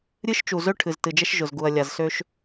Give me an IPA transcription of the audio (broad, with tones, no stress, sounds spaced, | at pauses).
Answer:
ɾʲ ɨ˦ ʃ t͡ʃ u˨ z ø˦ ʈʰ ɨ˨ z t ɨ˨ d͡ʒ ɛ˦ ʃ ʒ ʊ˨ z ɡ u˨ ɐ̯ lʲ a˨ z s ø˦ ʃ